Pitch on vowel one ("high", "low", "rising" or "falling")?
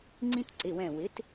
high